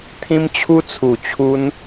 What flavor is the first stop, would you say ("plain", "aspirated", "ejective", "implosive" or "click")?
aspirated